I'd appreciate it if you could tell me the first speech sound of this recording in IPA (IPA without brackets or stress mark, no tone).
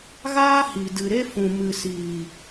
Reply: ɣ